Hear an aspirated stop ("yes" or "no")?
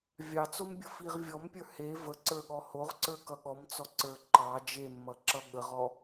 no